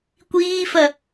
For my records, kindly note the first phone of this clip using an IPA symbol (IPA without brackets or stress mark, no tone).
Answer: kʷ